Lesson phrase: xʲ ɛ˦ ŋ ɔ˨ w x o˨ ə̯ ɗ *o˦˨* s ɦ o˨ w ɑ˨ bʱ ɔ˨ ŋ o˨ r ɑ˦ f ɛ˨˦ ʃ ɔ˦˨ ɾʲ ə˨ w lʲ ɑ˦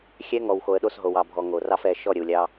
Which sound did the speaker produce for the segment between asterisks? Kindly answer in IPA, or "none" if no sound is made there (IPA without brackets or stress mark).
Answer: o˦˨